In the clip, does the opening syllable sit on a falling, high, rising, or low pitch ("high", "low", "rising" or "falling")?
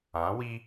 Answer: rising